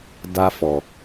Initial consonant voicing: voiced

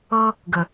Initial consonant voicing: voiced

